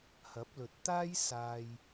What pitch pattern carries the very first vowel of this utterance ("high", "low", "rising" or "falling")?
rising